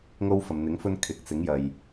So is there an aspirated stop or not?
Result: yes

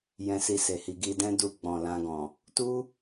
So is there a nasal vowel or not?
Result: yes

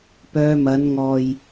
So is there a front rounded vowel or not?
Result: yes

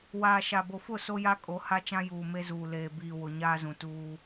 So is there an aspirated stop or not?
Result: no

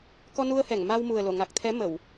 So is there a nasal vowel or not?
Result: no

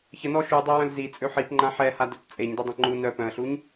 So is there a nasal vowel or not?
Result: yes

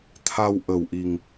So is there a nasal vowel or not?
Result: no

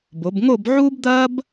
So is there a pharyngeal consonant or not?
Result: yes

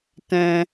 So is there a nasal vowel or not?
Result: yes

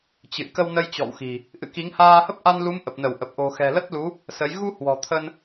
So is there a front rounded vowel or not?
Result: no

